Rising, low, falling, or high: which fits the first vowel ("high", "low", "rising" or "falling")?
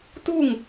falling